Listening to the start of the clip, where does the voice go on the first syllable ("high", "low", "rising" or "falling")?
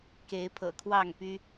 rising